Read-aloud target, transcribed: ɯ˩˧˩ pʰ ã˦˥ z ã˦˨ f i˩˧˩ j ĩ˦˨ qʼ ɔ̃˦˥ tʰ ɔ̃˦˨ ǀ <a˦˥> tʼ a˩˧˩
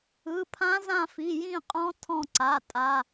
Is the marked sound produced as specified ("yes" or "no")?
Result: no